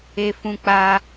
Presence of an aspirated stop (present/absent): absent